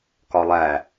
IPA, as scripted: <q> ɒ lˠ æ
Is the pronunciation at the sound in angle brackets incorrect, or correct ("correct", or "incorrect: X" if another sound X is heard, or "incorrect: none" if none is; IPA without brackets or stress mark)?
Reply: incorrect: k